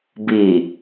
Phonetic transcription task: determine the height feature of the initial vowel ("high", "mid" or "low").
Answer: high